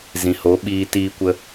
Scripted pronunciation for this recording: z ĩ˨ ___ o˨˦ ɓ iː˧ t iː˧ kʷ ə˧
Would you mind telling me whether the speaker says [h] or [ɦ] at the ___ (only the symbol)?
h